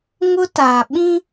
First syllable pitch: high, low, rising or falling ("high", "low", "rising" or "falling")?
high